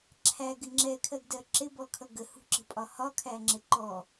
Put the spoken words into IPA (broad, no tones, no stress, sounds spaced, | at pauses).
ǁʰ æ ɡ ɪ ŋ͡ǁ ɛ kʰ ɜ ɡ d ɜ ǁ ɪ b ɔ kʰ ʌ ɡ ə h ṳ ǁ ə̤ pʼ ɒ h ɒ kʰ æ ŋ͡ǁ ɪ ǃ ɔ